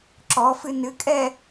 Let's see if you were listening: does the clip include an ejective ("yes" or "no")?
yes